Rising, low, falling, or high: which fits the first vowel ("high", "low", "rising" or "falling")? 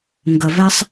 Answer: low